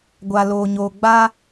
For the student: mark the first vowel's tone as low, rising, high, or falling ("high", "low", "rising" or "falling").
low